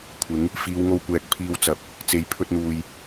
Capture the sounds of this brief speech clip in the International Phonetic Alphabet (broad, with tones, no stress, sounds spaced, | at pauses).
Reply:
kʷʰ ɪ˨˥ ŋ | f iː˨˧ w ŋ o˧ w kʷ ɛː˨ k̚ pʰ iː˧ w t͡s ɐ˨ p̚ | t͡s e˨ j pʰ ɵ˧ t̚ n̪ uː˨ j